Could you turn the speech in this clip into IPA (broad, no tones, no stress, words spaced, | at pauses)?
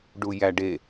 ɖujæɖe